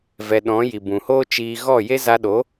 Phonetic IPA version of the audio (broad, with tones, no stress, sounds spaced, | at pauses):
v ɛ˨ ɗ ɔ̃˨˦ j i˨ b ũ˨ h oː˦ t͡ʃ iː˧ ɣ ɔ˦˨ j e˦ z a˧ ɗ o˨˦